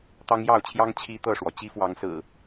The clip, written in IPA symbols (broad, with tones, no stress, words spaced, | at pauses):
t̪ɑ˦ŋjɑ˥˨ʊ̯t͡ɕʰjɑ˦ŋ t͡ɕʰi˦t̪ɤ˥˨ʂwɔ˩ t͡ɕi˦fwɑ˨˦ŋsɹ̩˨˩